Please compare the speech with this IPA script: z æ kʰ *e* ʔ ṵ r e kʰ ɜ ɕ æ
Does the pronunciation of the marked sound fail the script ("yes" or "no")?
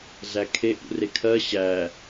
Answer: no